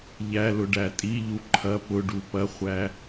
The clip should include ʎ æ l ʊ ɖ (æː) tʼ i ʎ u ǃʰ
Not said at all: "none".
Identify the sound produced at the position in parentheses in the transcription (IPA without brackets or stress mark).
æ